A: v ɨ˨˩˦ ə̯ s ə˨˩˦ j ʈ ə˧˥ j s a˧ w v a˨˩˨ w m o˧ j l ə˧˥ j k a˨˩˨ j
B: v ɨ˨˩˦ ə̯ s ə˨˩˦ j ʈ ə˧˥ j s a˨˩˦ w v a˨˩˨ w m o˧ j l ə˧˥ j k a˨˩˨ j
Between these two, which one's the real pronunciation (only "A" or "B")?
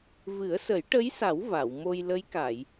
B